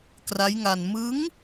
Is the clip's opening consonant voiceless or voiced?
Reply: voiceless